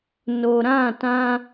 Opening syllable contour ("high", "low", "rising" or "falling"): low